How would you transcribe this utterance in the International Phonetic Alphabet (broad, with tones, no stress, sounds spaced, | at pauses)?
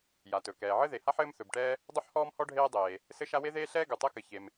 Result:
j a˩ t ɵ˩ k ɛː˩ ʕ ɘ˥ ð e˩ h a˥ ħ ɘː˥ m θ ɵ˩ b ʈ ɛː˥ | dˤ ɵ˥ ħ h ɔː˥ m h ɔ˥ ɖʱ eː˥ dˤ eː˩ | s ɘ˥ ʃ a˥ w e˥ ð eː˥ ɬ ɛː˥ ɡ u˩ tˤ ɛ˥ k ɘ˩ ç e˩ m